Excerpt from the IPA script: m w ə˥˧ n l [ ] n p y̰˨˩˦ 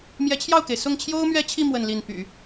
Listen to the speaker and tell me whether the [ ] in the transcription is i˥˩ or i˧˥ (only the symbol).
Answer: i˥˩